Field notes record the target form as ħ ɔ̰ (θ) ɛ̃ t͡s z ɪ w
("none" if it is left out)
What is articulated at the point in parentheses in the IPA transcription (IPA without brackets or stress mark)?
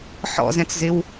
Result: z